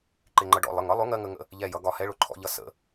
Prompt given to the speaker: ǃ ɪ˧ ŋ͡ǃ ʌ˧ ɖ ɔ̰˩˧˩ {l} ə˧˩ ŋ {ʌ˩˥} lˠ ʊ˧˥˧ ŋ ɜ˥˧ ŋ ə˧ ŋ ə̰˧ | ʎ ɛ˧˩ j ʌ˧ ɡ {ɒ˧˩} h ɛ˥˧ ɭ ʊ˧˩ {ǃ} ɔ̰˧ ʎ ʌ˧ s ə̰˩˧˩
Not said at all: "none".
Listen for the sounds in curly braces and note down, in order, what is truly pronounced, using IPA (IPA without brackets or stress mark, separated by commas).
lˠ, ʌ˧˥˧, ɒ˩˧˩, ǃʰ